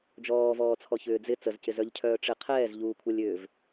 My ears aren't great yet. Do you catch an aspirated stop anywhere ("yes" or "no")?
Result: yes